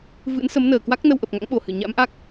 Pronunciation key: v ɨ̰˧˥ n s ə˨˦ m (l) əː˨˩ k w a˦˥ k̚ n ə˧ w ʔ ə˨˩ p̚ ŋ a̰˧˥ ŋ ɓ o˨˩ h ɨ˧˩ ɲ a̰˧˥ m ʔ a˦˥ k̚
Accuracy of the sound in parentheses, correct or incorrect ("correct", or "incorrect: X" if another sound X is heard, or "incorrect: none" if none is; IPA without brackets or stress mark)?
incorrect: n